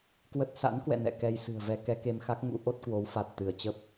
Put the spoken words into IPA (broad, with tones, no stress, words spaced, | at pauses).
kwə˦˥t̚ sa̰˧˥nkwɛ̰˧˨ nɛ̰˧˨kɛ˧jsɨ̤˨˩ə̯vɛ˧ kɛ˧ke˧mxa˦˥k̚ŋṵ˧˥ ʔo˦˥t̚kwo˨˦wfa˨˩t̚ t̪ɨ˧˩ə̯ t͡ɕə˦˥p̚